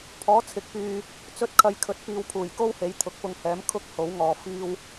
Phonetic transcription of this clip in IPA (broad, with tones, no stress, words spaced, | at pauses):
pʰɔː˨˥t͡sʰɪ˨˥k̚pyː˨ | t͡sɵ˧t̚kʰɐ˨˧j kʰɵ˨˥t̚piː˨˧w pʰuː˨˩jko˥whe˨˥j t̪ʰʊ˨˥k̚pʊ˧ŋhɛː˨˥m kʰʊ˥k̚ ho˨˥wŋɔː˨˧ fiː˧w